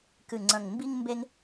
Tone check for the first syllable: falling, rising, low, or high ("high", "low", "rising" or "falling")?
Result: low